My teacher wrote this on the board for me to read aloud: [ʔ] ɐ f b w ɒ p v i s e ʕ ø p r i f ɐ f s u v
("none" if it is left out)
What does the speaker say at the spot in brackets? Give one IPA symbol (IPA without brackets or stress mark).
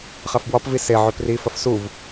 χ